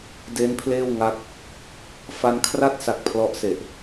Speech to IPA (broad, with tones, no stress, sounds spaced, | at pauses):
d e˦˥ n pʰ l eː˥˩ w ŋ a˦˥ k̚ | f a˧ n kʰ r a˥˩ t̚ s a˨˩ k̚ pʰ l ɔ˦˥ ʔ s e˨˩ ʔ